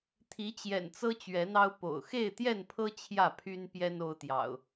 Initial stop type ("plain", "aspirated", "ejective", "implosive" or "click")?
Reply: aspirated